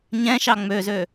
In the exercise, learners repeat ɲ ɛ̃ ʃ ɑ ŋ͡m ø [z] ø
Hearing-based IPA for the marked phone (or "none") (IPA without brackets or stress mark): z